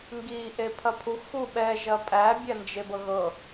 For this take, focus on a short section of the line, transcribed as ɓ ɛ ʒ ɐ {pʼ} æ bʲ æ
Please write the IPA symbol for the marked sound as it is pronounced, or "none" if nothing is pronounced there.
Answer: pʼ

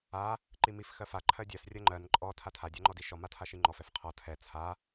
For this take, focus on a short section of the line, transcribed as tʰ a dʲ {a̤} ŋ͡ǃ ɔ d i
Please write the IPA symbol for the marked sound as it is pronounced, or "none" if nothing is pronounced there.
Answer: a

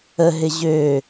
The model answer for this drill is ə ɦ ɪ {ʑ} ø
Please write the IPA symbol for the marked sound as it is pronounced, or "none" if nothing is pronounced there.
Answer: ʑ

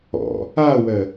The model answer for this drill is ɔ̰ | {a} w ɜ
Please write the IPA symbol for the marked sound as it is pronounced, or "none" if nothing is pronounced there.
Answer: a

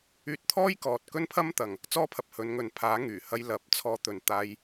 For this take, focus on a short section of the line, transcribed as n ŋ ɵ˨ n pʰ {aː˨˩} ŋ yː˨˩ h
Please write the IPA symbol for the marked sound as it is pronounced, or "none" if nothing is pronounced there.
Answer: aː˨˥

